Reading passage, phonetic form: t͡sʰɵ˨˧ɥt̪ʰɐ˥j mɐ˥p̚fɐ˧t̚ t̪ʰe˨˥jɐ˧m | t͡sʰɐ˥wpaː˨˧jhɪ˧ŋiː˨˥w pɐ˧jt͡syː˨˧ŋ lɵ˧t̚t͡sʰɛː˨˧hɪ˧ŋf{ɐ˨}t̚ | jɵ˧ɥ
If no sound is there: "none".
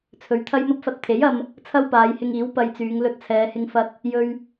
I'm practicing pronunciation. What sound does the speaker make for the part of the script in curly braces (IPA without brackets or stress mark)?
ɐ˧